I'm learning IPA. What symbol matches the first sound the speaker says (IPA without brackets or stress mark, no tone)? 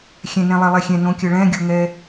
xʲ